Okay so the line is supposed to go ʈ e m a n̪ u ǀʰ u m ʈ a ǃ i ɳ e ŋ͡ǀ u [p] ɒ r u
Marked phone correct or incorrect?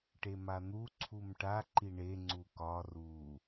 incorrect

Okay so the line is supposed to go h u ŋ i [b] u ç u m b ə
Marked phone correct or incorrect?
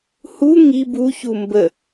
correct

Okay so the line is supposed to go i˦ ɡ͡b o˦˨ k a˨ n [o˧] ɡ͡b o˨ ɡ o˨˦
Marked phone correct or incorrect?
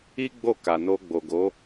correct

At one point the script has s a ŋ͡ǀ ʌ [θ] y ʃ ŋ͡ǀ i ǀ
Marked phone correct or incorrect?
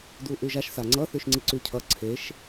correct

